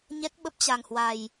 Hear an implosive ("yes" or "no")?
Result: yes